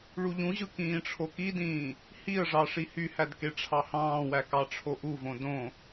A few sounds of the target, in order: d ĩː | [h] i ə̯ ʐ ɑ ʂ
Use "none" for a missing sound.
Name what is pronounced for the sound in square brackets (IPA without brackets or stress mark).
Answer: h